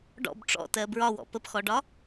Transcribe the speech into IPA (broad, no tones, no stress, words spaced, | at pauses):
ɖɔ̰b ʈ͡ʂɔ̰tɜ bɹɒwɔ̰ pəpxɔɖɒ